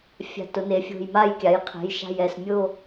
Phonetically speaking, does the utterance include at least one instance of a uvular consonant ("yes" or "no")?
yes